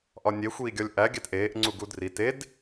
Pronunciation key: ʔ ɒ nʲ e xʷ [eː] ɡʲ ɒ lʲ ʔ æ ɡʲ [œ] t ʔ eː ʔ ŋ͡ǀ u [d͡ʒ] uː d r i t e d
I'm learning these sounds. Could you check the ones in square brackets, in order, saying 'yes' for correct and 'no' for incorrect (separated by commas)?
no, no, no